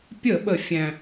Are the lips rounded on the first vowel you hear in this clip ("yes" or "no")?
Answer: no